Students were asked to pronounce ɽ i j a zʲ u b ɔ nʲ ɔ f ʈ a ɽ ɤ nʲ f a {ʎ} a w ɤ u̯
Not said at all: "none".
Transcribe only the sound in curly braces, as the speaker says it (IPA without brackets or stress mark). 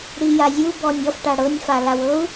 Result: l